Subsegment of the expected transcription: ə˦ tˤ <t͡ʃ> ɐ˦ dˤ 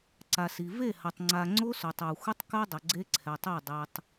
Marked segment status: incorrect: k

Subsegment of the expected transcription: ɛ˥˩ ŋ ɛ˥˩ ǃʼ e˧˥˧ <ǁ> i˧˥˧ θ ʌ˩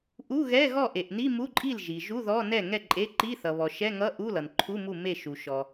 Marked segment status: incorrect: ǃ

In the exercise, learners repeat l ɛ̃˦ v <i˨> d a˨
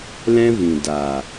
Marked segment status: incorrect: ĩ˨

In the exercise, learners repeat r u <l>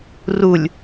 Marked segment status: incorrect: lʲ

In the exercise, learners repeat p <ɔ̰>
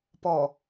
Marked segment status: incorrect: ɔ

